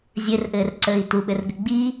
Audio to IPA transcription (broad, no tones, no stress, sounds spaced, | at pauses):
zʲ ɘ r ʔ ɘː r ǀ əː i̯ t u ɓ ɘ r ɡ ɘ ɡ͡b i